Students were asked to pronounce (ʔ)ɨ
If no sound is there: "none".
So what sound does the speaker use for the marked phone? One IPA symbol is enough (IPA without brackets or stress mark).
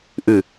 ʔ